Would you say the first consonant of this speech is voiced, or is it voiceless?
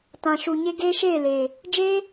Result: voiceless